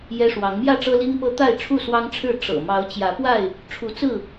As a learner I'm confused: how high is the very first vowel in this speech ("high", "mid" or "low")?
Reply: mid